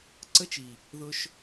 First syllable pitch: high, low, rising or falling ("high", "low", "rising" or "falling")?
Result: high